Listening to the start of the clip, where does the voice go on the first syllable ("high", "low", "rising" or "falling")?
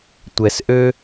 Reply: low